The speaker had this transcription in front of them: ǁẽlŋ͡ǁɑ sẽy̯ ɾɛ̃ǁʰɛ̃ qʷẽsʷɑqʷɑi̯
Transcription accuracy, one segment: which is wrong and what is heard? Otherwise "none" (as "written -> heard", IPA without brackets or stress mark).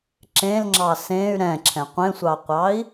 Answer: none